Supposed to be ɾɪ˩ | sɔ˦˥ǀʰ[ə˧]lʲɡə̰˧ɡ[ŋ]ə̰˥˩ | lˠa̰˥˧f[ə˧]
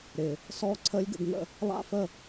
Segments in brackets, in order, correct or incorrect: incorrect: ə˦˥, correct, incorrect: ə˥˩

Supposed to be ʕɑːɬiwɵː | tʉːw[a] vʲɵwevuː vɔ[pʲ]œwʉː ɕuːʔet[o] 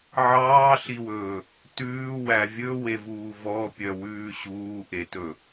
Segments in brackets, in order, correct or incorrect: incorrect: æ, correct, incorrect: ɵ

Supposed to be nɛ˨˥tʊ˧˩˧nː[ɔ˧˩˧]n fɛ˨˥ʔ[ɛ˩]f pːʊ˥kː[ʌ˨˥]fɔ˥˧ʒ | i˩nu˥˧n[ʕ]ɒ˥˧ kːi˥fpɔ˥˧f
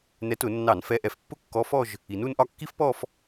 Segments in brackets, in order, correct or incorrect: incorrect: ɑ˧˩˧, correct, incorrect: ɔ˨˥, incorrect: ʔ

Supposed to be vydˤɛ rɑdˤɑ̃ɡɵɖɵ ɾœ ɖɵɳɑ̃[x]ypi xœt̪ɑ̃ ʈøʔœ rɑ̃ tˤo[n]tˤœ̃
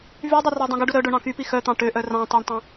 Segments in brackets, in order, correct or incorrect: incorrect: k, incorrect: ɳ

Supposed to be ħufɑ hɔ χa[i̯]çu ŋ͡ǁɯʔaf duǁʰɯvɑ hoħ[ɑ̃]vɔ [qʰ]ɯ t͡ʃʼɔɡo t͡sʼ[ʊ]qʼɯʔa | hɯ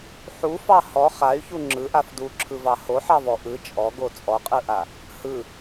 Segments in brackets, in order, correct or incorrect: incorrect: y̯, incorrect: ɑ, incorrect: ʔ, incorrect: ɔ

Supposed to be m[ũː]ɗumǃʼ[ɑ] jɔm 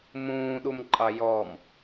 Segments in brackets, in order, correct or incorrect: correct, correct

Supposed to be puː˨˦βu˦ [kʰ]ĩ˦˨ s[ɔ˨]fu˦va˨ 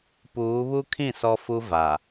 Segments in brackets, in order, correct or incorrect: correct, incorrect: ɔ˦

